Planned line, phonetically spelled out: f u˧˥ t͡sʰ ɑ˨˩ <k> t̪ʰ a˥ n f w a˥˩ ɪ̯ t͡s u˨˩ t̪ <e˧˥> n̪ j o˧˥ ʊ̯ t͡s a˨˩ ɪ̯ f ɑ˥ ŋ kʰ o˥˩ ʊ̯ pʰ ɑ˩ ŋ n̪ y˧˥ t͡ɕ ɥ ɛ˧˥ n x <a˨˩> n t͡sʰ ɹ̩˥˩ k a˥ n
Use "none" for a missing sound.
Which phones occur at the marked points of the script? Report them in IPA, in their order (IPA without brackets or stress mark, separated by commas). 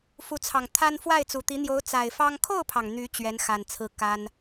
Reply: ŋ, i˧˥, a˨˩